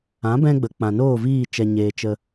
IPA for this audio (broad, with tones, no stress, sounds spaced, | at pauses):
ã˨˦ b ɛ̃˧ ɡ͡b ə˨ k͡p ã˨ n oː˦˨ v iː˦˨ t͡ʃ ɛ˧ ɲ eː˧ t͡ʃ ə˧